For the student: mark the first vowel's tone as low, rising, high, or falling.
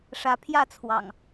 rising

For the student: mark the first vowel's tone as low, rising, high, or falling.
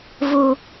high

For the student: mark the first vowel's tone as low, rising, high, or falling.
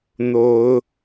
rising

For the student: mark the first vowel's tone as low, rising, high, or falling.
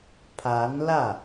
rising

